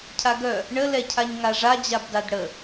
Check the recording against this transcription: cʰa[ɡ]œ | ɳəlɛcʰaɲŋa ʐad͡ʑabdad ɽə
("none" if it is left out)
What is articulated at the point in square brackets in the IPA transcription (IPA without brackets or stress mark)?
ɡ